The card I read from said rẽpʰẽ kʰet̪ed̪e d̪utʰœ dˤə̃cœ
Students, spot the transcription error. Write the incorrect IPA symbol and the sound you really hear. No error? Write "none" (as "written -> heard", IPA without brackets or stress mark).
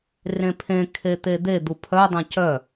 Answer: tʰ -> pʰ